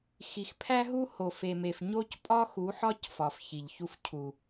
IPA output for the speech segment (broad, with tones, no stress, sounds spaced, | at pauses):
x i˨ x pʰ æ˦ ɦ u˦ h o˨ f e˨ m e˨ f ɲ o˦ c pʼ ɒ˦ x u˨˦ ħ ɒ˦ c f ɒ˨ f ç i˨ ʎ ç u˦ f cʰ u˨